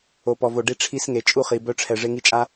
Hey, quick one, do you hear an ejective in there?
yes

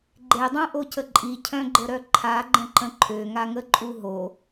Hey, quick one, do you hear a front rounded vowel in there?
yes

